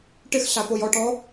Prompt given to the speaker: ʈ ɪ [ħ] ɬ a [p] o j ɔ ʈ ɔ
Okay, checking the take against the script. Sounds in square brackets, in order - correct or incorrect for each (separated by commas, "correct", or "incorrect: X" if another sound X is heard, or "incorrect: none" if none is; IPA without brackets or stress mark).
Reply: incorrect: x, correct